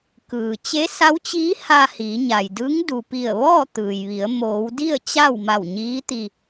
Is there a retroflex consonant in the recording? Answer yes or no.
no